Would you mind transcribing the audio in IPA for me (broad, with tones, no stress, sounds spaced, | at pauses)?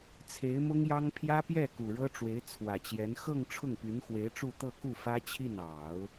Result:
t͡sʰ e˧˥ ɪ̯ m ʊ˥ ŋ j ɑ˥ ŋ pʰ j ä˥ p j ɛ˥˩ k u˨˩ ɻ ɤ˥ ʈ͡ʂ w e˧˥ ɪ̯ t͡sʰ w ä˨˩ t͡ɕ j ɛ˧˥ n x ɤ˥˧ ŋ ʈ͡ʂʰ ʊ˥˩ ŋ p y˧˥ n x w e˧˥ ɪ̯ ʈ͡ʂ u˥˧ t̪ ɤ˥˧ k u˥˩ f ä˥ t͡ɕʰ i˥˩ n ɑ˨˩˦ ʊ̯